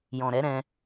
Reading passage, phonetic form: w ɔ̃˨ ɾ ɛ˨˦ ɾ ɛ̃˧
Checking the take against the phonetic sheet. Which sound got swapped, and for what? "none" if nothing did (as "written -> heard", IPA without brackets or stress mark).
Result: w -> j